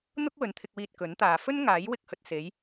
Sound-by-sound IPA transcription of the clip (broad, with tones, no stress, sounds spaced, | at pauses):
n̪ ʊ˥ k̚ w ɵ˨ n t̪ʰ ɪ˧ k̚ w iː˧ t̚ k ɵ˨˥ n t̪ aː˨ f ɵ˥ n ŋ aː˨˥ j w ɪ˧ k̚ h ɵ˨ t̚ s e˨˧ j